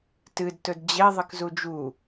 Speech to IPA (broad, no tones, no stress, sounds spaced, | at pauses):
t ɨ d t ɵ d d͡ʑ e ðˤ ɨ k z u d͡ʒ u